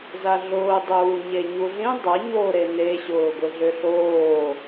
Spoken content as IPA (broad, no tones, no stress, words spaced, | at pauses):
zaɮʊː dˤuːɲeɲuɮĩ dˤɐ ɲo ɾene ɕʊːɡʷɪɮʏɬoː